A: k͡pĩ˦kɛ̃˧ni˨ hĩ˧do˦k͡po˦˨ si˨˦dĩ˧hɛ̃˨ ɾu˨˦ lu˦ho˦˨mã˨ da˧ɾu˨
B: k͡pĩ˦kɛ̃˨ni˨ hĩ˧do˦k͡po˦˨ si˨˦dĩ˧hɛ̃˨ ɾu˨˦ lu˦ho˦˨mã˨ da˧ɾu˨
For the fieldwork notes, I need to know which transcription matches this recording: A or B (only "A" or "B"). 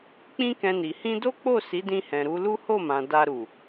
A